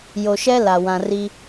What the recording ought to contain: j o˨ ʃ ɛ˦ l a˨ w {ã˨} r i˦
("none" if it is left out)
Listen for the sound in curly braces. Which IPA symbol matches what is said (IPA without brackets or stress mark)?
ã˨